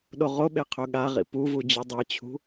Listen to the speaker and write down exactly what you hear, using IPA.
ɗ o ʁ o ɓ e qʰ ɵ ɠ a ʁ ḭ p u v u d͡ʑ ɨ dˤ e t͡ɕʰ ṳ

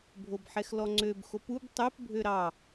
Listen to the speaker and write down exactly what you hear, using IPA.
bʱ o b ħ ɛ x l ɔ ŋ͡ǀ ø b x o p u b tˤ ø p bʱ ø ɾ ɑ

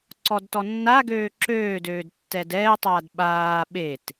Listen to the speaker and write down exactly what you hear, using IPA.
ǀ ɔ d t ɔ nː a ɡ øː ǁ øː d øː d tː ɛ d ɛː tˤ aː d ɓ aː ɓ e t

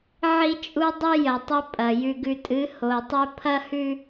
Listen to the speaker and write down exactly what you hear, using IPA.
ʕ i˦ t͡ʃʼ u˦ dˤ ʉ˦ j ɐ˨ tˤ ɵ˦ pʼ ɐ˨ j ʉ˨ ɡ ʉ˨ tʼ ɨ˨˦ h o˨ tˤ ɵ˦ pʰ ɐ˦ h ʉ˦

